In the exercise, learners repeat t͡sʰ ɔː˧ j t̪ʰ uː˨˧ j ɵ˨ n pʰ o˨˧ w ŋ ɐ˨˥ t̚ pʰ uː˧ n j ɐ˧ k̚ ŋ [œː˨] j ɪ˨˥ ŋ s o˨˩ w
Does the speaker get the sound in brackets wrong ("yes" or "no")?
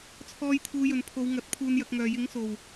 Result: no